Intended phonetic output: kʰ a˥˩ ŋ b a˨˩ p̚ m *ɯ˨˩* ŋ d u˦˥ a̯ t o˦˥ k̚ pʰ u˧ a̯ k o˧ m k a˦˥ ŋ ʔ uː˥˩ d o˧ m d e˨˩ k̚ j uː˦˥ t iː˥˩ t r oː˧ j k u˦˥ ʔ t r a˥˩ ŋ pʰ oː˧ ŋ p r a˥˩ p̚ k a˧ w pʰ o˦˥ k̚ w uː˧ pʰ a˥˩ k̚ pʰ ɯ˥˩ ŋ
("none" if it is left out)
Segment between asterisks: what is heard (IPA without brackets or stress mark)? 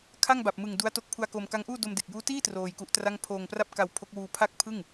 ɯ˨˩